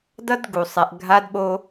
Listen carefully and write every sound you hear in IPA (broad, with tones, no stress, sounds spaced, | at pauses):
d ʌ˦ d ɡ u˨ sˤ ɛ˨ ʔ ɡʱ a˦ d ɓ o˦